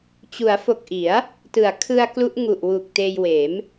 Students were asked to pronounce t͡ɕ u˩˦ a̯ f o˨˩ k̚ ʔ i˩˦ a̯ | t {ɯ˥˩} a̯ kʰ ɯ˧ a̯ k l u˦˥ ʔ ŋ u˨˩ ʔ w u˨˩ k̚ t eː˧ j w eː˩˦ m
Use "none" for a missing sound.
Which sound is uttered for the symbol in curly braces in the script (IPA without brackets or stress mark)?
ɯ˩˦